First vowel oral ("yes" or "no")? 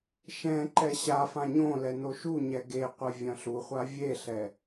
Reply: no